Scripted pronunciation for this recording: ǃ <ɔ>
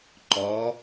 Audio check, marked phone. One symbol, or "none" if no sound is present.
ɔ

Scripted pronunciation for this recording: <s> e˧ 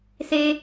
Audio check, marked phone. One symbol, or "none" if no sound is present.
s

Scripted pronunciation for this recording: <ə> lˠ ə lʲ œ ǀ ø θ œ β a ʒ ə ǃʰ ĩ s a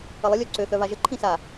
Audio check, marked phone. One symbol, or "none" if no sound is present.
ə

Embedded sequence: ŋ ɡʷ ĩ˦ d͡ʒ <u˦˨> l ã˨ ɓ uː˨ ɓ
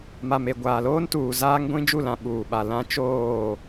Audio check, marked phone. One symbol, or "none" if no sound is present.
u˦˨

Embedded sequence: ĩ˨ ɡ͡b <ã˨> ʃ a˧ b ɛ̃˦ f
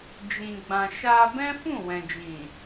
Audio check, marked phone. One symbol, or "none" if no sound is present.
ã˨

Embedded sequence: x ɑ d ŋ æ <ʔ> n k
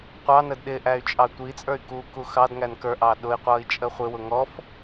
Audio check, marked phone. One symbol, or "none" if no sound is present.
none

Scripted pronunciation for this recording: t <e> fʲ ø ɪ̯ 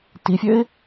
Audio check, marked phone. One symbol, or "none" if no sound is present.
i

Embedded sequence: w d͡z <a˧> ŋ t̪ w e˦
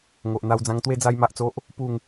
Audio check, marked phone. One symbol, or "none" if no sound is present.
ã˧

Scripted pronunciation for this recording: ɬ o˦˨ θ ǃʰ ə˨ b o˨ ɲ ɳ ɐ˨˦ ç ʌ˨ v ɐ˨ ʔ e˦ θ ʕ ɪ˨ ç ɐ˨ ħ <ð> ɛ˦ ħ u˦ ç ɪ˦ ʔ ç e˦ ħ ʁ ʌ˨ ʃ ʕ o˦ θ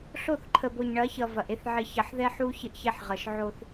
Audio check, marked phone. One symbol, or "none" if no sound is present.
ð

